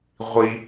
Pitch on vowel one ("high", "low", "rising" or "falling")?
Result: high